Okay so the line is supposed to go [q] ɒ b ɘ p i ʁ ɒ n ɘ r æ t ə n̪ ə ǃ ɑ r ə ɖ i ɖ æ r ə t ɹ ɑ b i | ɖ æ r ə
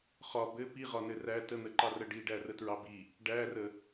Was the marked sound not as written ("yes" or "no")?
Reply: yes